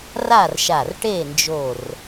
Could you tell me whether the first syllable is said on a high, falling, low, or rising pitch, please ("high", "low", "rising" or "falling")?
falling